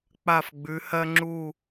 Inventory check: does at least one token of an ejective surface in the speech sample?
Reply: no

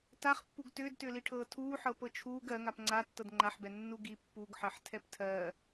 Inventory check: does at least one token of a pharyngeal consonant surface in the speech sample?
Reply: yes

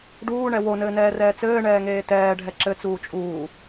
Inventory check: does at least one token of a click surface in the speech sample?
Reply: yes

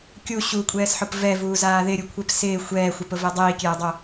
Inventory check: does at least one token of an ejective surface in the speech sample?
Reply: yes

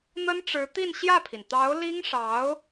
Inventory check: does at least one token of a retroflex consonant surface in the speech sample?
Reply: yes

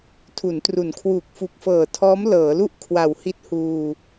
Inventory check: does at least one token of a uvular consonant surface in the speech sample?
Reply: no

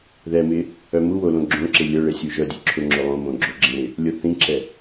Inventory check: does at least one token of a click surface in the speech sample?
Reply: yes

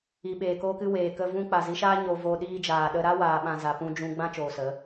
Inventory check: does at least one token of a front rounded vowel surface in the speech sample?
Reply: no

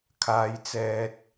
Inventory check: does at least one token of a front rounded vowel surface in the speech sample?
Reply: no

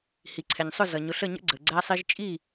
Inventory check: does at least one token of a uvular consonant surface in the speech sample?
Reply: no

